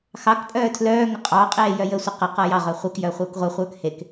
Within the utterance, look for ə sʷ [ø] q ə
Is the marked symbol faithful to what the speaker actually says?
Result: no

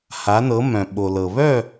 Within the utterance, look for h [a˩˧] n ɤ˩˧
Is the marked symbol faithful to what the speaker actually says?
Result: yes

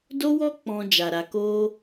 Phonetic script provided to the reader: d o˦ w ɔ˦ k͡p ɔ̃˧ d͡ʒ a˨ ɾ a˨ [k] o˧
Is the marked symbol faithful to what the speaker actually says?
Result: yes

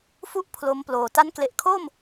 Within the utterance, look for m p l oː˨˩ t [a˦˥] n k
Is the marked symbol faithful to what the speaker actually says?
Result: yes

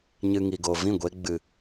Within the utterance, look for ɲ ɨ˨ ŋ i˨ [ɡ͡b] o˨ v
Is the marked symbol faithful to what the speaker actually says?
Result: no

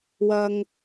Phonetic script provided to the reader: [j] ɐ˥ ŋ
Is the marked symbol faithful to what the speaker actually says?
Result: no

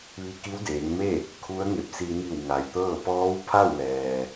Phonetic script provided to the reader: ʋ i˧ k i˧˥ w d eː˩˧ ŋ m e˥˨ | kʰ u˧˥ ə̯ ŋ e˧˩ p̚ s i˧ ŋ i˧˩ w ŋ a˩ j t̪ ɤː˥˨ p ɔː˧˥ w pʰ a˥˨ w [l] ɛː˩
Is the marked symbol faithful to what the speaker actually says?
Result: yes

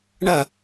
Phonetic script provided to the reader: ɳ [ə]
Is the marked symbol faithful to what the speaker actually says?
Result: no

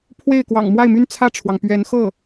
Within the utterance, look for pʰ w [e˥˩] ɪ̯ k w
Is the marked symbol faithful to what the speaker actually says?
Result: yes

